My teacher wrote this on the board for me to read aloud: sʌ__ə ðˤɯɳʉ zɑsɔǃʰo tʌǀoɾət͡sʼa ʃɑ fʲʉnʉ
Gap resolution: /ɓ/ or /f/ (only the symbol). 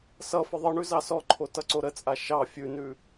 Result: f